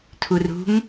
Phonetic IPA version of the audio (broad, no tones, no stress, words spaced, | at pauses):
tʰurṳŋ